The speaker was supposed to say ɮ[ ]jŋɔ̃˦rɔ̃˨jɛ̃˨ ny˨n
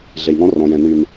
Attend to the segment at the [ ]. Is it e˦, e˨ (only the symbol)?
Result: e˨